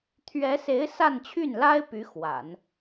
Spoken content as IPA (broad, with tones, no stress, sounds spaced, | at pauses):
t̪ʰ ɥ ɛ˧˥ s e˧˥ ɪ̯ s a˥˧ n t͡ɕʰ y˥˩ n l a˥ ɪ̯ p y˧˥ x w a̰˨˩˦ n